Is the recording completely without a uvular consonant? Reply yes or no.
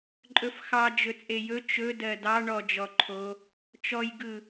yes